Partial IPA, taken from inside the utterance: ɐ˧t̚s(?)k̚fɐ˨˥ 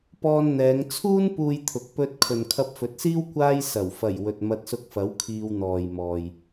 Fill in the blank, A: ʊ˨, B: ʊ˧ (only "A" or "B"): B